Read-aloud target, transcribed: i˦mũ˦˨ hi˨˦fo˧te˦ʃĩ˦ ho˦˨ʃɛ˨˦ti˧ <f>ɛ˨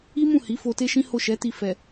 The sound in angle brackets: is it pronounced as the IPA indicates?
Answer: yes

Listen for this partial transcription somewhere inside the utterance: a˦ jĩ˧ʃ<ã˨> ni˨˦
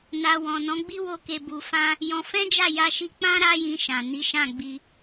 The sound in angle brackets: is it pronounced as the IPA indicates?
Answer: yes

